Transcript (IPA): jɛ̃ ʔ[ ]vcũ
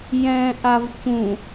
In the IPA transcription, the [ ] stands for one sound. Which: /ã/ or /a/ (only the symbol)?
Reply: a